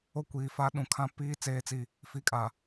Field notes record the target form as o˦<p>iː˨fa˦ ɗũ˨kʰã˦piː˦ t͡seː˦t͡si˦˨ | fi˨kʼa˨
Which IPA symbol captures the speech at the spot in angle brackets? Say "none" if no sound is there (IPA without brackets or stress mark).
kʷ